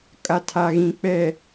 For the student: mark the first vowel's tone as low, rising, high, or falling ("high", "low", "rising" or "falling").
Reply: low